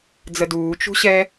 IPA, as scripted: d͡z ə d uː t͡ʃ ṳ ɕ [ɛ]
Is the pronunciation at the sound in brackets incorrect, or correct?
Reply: correct